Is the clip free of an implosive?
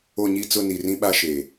no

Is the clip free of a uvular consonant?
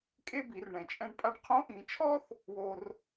no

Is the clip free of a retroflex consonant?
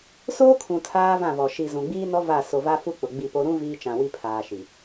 yes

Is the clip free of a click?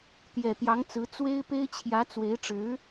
yes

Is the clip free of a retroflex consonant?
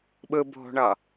no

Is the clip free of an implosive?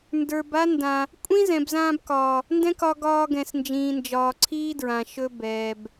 yes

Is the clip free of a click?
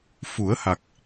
yes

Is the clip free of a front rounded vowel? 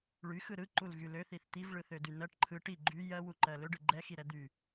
no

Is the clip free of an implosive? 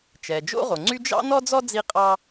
yes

